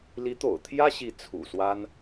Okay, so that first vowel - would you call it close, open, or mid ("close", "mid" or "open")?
close